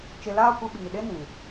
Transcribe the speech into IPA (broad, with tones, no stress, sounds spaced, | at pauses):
t͡ʃ e˧ l aː˦ kʷ ɨ˧ ɓ iː˨ ɗ e˦ n ĩ˨